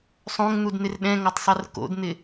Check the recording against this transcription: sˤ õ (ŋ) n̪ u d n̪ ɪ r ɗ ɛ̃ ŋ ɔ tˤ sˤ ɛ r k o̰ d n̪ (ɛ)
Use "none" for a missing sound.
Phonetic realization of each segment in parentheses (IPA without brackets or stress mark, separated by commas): ŋ, ɪ